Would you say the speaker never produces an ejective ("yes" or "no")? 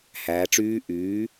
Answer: yes